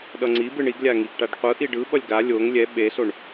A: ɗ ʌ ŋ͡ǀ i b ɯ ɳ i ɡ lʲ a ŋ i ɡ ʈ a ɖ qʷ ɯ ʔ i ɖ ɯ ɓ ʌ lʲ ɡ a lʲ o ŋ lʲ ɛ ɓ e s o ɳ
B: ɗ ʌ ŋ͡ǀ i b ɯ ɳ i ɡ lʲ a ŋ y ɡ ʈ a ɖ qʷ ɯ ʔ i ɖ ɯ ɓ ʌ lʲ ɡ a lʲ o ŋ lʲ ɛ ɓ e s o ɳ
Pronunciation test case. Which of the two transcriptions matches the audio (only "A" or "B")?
A